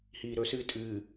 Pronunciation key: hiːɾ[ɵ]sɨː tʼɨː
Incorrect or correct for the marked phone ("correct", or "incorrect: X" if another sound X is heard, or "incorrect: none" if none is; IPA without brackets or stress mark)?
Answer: correct